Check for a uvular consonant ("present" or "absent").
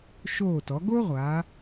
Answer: present